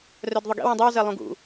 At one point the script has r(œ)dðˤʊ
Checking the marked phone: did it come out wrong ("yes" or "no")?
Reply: no